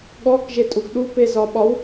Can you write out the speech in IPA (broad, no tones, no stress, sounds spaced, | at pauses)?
ɠ ɔ k ʒ e tʼ u ɡ ɗ u p e z ɒ ɓ ɒ w